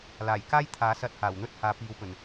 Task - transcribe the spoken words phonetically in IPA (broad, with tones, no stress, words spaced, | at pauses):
laː˨˩jkaː˥j t̪ʰaː˨˥sɐ˧t̚haː˨˩w n̪ɵ˥t̚haː˨˧ piː˨˧wpɵ˨˩n